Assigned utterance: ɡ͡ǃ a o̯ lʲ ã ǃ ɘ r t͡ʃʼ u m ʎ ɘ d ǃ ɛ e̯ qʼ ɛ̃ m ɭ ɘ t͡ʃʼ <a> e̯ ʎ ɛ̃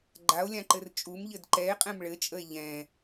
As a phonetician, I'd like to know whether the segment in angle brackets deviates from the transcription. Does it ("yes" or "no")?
yes